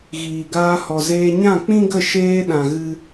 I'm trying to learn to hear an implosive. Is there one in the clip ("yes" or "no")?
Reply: yes